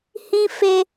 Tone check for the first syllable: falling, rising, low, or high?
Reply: high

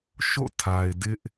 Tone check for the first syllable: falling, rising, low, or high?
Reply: falling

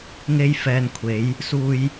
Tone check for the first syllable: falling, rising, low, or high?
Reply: high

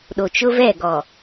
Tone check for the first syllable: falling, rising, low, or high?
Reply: low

